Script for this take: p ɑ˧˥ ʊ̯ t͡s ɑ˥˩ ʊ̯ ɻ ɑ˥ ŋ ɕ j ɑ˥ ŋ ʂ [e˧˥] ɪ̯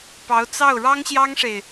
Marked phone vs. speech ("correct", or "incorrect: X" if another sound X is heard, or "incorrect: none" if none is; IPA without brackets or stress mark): incorrect: e˨